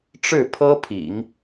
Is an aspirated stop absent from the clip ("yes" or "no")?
no